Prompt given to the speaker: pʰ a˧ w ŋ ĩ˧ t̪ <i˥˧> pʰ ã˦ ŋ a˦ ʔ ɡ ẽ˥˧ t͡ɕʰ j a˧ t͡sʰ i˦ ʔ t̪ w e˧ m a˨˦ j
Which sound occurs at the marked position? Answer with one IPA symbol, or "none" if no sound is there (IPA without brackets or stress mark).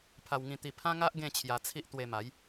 i˧